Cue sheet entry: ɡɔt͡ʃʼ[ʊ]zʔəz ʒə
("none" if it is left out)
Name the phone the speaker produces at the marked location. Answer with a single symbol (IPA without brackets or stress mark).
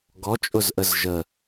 ʊ